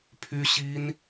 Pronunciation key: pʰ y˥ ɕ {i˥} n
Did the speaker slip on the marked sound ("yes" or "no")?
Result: no